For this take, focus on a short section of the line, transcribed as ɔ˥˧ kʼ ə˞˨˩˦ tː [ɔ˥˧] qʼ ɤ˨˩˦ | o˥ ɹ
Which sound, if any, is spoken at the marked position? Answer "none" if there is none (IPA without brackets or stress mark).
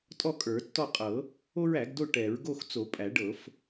ɔ˥˧